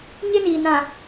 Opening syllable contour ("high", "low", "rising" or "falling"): high